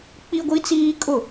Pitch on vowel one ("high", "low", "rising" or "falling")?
high